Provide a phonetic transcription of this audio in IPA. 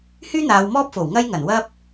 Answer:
h yː˥ n̪ aː˨˧ w m ɔː˥ p̚ f o˨˩ w ŋ ɐ˥ j ŋ ɐ˨˩ n w ɐ˥ p̚

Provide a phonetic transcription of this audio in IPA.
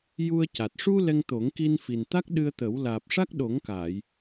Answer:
j u˧ ə̯ c a˨˩ t̚ ʂ u˧ l ɛ˧ ŋ t̪ o˨˩˦ ŋ k i˧ n f i˨˩ n t̪ a˦˥ k̚ ɗ ɨ˧ ə̯ t̪ ə˨˩˦ w l aː˨˩ p̚ ʂ a˦˥ k̚ ɗ o˨˩˦ ŋ k a˨˩˨ j

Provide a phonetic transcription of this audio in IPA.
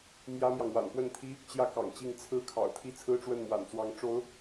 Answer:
m j ä˥ m j ɑ˨ ŋ w a̰˨˩ n p w ə˥˩ n t̪ʰ i˥ | t͡ɕ j ä˥ k ɑ̰˨˩ ŋ t͡ɕ i˥˩ ŋ t͡sʰ ɹ̩˥ kʰ ɑ̰˨˩ ʊ̯ t̪ʰ i˥ t͡sʰ ɹ̩˥ ʈ͡ʂ w ə˥˩ n m w a̰˨˩ n t͡s w ɑ˧˥ ŋ ʈ͡ʂ o˧˥ ʊ̯

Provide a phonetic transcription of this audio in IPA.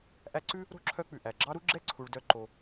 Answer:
ʔ æ˦ ǀ ʉ˥ | ɾ o̤˥ ǁʰ œ˦ k͡p ʉ˩ ʔ æ˩ ɡ͡ǁ ɑ˦ ɾ u˦ ɡ͡ǁ ɛ˦ ǀʰ u˩ ɭ d œ˨ ǃ o˩

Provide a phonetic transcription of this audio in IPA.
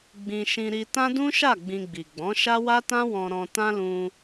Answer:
ɡ͡b ĩ˧ ʃ ĩ˧ ɾ i˧ t ã˦ d ũ˦ ʃ a˦˨ ɡ͡b ĩ˧ ɡ͡b i˨ ɡ͡b ɔ̃˨˦ ʃ a˦ w a˦ t ã˦ w ɔ̃˧ ɾ ɔ̃˧ t ã˦ l ũ˧

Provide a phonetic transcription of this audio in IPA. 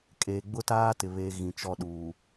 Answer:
kʼ eː˨ ɡ͡b ʊ˦ t aː˦ t ɪ˨ β e˦ ɣ ĩ˨ t͡ʃ ɔ˦˨ ɗ uː˨

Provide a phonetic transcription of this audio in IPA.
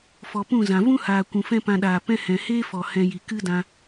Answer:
f ɔ˨ p ũ˦˨ z ã˨ v ũ˦ h aː˨ kʷ ũ˨ f ɛ̃˦ p ã˧ ɗ aː˨ p ɛ̃˦ h ɛ̃˨ h eː˦ f ɔ˨ h ɛ̃˧ j i˨ k ɨ˦ d ã˧

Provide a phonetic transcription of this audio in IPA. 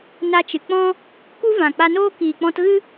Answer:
n a˧ t͡ʃ ɨ˨ k͡p ɔ̃˦ | k u˦ v ã˨ k͡p a˧ n oː˦ k iː˨ k͡p ɔ̃˧ t ɣ ɨ˦

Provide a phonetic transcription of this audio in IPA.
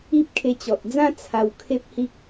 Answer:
i˦ p̚ kʰ e˧ t͡ɕ ɔ˨ t̚ d͡z ã˦ t͡sʰ a˧ w kʰ e˦ p̚ h i˦ k̚

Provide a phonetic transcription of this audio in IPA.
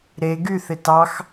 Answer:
ɾ e ɡ y θ ɪ t ɑ x

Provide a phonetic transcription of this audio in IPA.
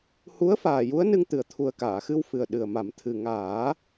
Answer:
h u˧˥ ə̯ f aː˨˩ j u˧˥ ə̯ n ɨ˧ ŋ t̪ ɨ˨˩ ə̯ t̪ʰ u˨˩ ə̯ k aː˨˩˨ x ɨ˧ w f ɨ˨˩ ə̯ ɗ ɨ˨˩ ə̯ m a˨˩˦ m t̪ʰ ɨ˨˩ ŋ aː˨˩˦

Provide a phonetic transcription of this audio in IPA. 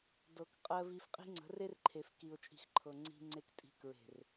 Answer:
d ɤ˨ k qʼ ɜ˨ v i˨ f qʼ i̤˦ ŋ͡ǀ ə̤˨˦ r e˦ r ǃʰ e˨ f k i˨ ʊ̯ t͡ʃʼ i̤˨ x ǃʰ ɤ˨ ŋ͡ǀ i̤˨ ŋ͡ǀ e˨ k tʼ i̤˨ k ɹ e̤˨ r

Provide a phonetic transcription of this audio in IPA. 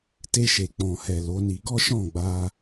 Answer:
t e˧ ʃ e˨ k͡p ɔ̃˨ h ɛ˨ l o˨˦ n i˧ ɡ ɔ˦ ʃ ɔ̃˦˨ ɡ͡b a˧

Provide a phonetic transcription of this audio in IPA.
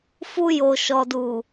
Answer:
f u˧ j o˨ ʃ ɔ˨ d u˨

